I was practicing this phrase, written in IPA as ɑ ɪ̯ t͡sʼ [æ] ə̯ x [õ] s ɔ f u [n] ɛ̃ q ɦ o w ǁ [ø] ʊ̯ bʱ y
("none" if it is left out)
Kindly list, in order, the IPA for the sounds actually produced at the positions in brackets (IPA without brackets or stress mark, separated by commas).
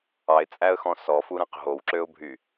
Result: æ, ɔ̃, ɾ, ø